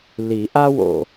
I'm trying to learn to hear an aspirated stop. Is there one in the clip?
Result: no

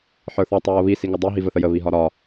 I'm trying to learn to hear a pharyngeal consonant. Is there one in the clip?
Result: yes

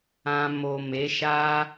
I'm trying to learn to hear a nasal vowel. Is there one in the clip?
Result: yes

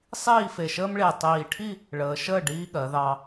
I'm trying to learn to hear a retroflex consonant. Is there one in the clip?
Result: yes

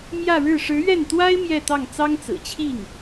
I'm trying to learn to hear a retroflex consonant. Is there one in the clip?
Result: yes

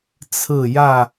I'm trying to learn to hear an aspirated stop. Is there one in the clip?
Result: yes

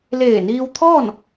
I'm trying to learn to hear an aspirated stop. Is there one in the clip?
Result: yes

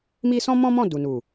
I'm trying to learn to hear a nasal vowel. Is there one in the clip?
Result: yes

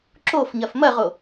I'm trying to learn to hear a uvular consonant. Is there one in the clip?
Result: yes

